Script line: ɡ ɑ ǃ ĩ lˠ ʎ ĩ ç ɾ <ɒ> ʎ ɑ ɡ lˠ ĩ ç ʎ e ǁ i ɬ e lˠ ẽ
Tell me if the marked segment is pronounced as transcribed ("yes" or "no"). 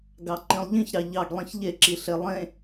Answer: no